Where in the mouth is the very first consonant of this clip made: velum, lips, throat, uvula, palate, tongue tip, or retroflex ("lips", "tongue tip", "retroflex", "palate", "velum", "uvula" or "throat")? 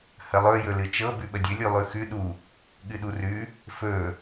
throat